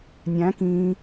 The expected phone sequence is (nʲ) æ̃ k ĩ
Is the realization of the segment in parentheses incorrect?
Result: no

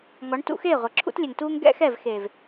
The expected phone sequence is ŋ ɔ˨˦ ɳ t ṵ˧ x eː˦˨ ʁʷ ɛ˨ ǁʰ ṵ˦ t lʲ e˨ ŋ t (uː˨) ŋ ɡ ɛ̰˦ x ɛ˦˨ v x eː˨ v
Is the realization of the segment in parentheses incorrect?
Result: yes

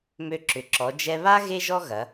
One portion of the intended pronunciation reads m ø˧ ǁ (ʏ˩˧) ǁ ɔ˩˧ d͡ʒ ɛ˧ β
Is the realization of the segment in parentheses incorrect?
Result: no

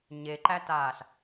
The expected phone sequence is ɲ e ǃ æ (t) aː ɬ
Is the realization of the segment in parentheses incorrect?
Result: no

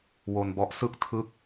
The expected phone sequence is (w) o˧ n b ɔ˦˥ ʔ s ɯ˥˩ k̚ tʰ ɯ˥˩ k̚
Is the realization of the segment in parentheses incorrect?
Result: no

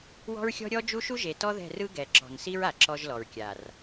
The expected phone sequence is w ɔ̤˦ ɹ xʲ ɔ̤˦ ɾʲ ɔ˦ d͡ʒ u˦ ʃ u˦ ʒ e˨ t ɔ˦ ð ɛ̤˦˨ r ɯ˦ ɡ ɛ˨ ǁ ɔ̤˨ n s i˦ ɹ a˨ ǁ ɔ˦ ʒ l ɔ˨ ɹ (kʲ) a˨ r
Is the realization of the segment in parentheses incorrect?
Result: no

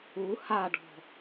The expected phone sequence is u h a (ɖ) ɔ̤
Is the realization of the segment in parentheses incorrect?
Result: no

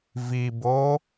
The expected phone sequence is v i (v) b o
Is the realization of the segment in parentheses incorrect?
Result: yes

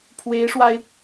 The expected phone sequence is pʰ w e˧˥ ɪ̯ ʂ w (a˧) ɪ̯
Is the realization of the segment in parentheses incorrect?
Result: no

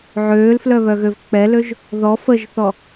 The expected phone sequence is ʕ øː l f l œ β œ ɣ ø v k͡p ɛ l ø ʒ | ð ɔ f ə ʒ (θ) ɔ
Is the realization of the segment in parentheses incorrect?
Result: no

